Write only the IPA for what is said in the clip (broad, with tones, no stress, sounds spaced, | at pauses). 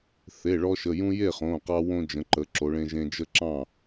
θ e˩˧˩ ɭ ɔ˧ ʃ ə˩˧˩ j ũ˧ j e˥˩ χ õ˩˧˩ q ɑ˧ w õ˧ d͡ʒ ə̃˩˧ ǃ ə˩˧ ǁ o˩˧ ɭ ẽ˧ ʒ ẽ˧ d͡ʒ ə˥˧ ǁ ɑ̃˥˩